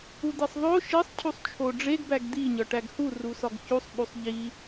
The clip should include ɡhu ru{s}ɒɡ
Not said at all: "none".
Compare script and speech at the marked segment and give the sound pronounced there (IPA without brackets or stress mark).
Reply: s